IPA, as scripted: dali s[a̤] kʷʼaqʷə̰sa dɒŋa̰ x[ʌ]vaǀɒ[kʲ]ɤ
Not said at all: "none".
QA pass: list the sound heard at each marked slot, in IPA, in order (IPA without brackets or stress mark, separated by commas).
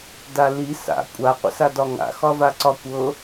a̰, ɒ, kʷ